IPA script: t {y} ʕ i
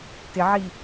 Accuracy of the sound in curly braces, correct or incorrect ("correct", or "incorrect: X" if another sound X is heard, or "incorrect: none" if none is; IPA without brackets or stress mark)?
incorrect: ɪ